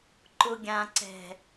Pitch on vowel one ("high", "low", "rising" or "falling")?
low